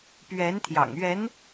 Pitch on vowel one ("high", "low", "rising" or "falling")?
rising